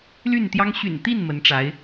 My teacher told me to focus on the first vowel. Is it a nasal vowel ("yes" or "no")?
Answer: no